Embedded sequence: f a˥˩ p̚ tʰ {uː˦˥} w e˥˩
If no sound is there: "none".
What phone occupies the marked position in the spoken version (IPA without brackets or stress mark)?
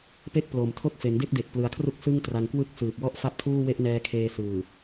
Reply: uː˥˩